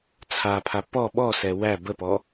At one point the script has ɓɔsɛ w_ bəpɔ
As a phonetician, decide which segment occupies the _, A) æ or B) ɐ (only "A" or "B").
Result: A